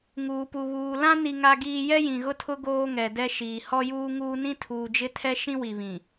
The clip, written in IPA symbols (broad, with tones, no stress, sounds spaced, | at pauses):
ŋ uː˨ p u˨ β uː˨ l ã˦ n i˦ ŋ a˦ ɡ iː˦ j ɛ˦ j ĩ˨ ɣ ʊ˦ tʰ ʊ˦ ɡ oː˦ ŋ ɛ˨ d ɛ˦ ʃ iː˨ h ɔ˦ j uː˦ ŋ uː˦ n ĩ˦ tʰ uː˨ d͡ʒ ɪ˦ tʰ ɛ˦ ʃ ĩ˦ w i˨ β ĩ˨